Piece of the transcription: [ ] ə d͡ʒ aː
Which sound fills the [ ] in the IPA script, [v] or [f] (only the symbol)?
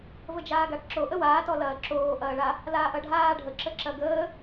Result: v